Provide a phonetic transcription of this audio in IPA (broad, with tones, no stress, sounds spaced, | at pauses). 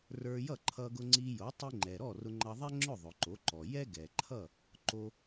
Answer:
r ə˞˧ j ʌ˥˩ ǃʰ ʌ˧ ɡ ʊ˧ ŋ͡ǀ i˧ j o˩˥ tˤ i˧ ŋ͡ǃ ɛ˩ ɾ ɔ˥˩ r ʊ˧ ŋ͡ǃ ʌ˧ ðˤ ɛ˥ ŋ͡ǁ ʊ˥˩ ðˤ ʊ˩ ǃ o˩˥ ǃ ɔ˩ j ɛ˥ ɡ ɛ˩ ǃʰ ʌ˥˩ | ǃ o˧